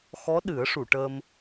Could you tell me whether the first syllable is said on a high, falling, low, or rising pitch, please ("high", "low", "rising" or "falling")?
rising